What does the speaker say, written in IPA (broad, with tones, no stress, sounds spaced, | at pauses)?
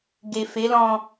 ɡ e˨ f e˨˦ l ɔ̃˧